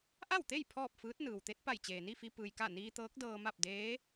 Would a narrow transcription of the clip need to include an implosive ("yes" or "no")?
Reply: no